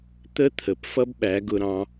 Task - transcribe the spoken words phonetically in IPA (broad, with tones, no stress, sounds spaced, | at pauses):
t̪ ə˦ t̪ʰ ə˨ p f ʌ˦ b ɓ æ˨˦ ɡ ʊ˧ ɾ ɑ̃˧